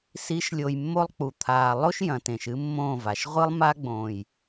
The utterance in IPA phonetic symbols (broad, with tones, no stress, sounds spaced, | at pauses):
s i˨˦ ʃ lʲ o˨ j mː o˦ lˠ k͡p u˨ t̪ʰ aː˨ lˠ o˦ ʃ j ɐ̃˨ t ẽ˨ ʃ ɨ˦ mː õː˦˨ v a˨ ʃ ʁʷ ɨ˦ lˠ m a˦ ɡ͡b õː˨ j